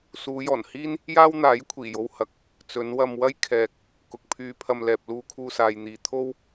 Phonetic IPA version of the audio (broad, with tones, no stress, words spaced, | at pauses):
suː˨˧jɔː˨˩nhiː˥n | jaː˥wn̪aː˨˥j kʷʰiː˨˩jo˧whɐ˨˥k̚ | t͡sɵ˨˧nwɐ˧m wɐ˥jkʰɛː˨k̚ | kʊ˨k̚pʰyː˧pʰɐ˧m lɛː˨p̚luː˧kʰuː˧ saː˨jn̪iː˨ t̪ʰo˥w